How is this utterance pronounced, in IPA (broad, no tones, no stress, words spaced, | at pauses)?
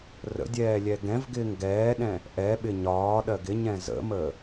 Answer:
rə̰dʲɛː lʲɛɡɛ̃vɡɪːŋ ɡɛːɗɛ̃ | ʔɛɓɪ ɲɒː ɗɜɡɪɲɛ̃ zə̰mə